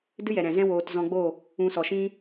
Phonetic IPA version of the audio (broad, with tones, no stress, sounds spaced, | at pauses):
d ɨ˦ j ɛ˨ ɾ ɛ̃˨ z ɛ̃˦ w oː˧ t z ɔ̃˧ ɡ͡b o˦˨ | ũ˧ s ɔ˨ ʃ ĩ˦